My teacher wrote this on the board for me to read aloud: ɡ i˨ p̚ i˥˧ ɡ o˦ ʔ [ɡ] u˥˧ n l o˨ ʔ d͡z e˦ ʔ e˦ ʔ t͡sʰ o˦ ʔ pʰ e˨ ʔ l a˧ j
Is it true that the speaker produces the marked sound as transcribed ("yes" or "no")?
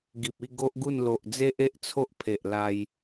yes